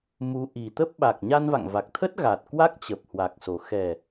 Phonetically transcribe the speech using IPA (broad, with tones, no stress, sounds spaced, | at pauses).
m u˨˦ ʔ i˨˩ t̪ ə˦˥ p̚ ɓ a˨˩ k̚ ɲ a˧ n v a̰˧˨ ŋ v a˨˩ k̚ t̪ʰ ə˦˥ t̚ ɣ a˨˩ t̚ k w a˦˥ k̚ t͡ɕ ə˨˩ p̚ h w a˨˩ k̚ s o˨˩ x ɛ˨˩